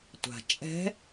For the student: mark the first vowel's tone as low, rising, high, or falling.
low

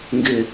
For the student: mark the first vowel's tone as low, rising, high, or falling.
low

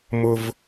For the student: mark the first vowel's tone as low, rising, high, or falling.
high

